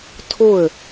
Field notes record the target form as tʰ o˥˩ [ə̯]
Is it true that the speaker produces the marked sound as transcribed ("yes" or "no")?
yes